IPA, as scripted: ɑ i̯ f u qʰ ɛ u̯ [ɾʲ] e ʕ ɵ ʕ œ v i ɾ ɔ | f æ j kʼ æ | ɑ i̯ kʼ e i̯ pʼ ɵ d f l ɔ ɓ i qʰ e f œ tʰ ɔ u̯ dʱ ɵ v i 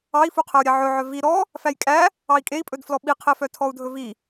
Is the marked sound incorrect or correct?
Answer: correct